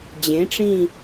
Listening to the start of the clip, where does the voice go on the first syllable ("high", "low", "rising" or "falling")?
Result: rising